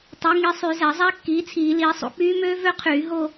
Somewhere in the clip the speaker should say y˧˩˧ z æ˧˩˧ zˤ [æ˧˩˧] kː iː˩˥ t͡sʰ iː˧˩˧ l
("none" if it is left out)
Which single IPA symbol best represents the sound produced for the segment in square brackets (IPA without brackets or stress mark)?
æ˦˥